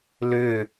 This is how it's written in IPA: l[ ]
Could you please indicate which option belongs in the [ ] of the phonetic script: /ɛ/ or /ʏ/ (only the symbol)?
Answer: ʏ